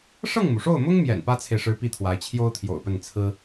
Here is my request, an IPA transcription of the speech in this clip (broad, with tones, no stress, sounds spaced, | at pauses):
ʂ ɤ˥˩ ŋ m u˩ ʂ o˥˩ ʊ̯ m ʊ˥ ŋ m j ɛ̰˨˩ n p ä˥ t͡sʰ e˨ ɪ̯ ʂ ɻ̩˧˥ p i˥ t̪ʰ w a˧˥ ɪ̯ t͡ɕʰ j o˥ ʊ̯ t̪ʰ j o̰˨˩ ʊ̯ p ə˥˩ n t͡sʰ ɹ̩˥